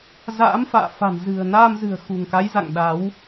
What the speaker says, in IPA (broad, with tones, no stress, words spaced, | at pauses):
za̰ː˧˥mfa̰ː˧˨fa̤˨˩n zɨ̤˨˩ə̯naː˧mzɨ̤˨˩ə̯ xṳ˨˩ŋka˨˦jza̰˧˨ŋ ɗa˨˦w